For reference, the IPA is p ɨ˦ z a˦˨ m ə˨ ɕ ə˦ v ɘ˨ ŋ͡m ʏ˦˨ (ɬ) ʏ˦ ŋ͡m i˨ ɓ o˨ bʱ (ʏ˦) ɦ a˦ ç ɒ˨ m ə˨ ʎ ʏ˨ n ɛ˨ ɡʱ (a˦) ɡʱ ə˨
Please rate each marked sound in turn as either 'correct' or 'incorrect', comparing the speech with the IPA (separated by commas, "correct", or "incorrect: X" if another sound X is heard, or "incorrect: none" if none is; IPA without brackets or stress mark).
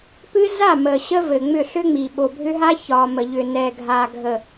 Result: correct, correct, incorrect: a˨